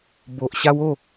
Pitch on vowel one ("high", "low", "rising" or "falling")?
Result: low